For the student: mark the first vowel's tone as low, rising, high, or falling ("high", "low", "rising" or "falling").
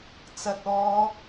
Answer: low